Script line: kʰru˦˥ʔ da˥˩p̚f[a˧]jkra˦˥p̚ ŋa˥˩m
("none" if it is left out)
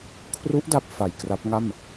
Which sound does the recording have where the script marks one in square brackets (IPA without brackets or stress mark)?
a˨˩